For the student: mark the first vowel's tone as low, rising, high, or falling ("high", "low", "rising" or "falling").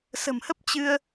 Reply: low